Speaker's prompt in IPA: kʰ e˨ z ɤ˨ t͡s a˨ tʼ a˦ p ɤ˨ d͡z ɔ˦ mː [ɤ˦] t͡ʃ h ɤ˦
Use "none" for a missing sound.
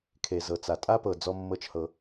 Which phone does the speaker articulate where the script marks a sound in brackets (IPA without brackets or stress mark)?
ɤ˦